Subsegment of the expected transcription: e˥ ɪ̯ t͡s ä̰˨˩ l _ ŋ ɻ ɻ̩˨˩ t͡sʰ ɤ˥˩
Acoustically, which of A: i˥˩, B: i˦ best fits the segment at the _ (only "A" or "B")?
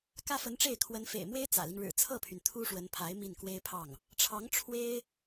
B